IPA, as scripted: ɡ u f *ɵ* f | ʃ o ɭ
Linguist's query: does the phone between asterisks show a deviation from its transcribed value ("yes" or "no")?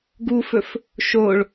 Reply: no